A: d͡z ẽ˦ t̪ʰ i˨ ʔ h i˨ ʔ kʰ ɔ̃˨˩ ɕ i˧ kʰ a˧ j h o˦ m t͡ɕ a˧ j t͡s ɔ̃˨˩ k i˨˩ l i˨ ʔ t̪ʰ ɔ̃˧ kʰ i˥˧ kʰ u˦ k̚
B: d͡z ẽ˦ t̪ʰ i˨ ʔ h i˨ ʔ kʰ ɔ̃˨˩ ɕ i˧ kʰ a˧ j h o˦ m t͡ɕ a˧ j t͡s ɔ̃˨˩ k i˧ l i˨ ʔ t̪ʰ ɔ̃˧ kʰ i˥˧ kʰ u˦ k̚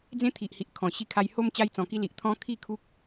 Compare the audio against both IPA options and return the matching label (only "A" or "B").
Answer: B